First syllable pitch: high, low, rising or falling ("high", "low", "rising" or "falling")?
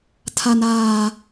low